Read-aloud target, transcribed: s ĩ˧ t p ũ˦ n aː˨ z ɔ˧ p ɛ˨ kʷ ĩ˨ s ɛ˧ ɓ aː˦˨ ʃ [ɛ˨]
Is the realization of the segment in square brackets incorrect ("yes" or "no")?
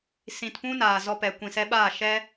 yes